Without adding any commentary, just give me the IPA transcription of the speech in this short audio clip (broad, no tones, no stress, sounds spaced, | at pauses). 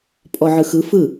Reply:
pʼ ɔ ʕ ɯ x ɯ f ɯ